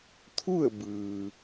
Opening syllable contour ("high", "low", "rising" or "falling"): falling